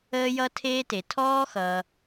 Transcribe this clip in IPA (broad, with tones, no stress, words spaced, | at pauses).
əː˥jʌ˥tʰeː˥te˩ tʰɔː˥xʌː˩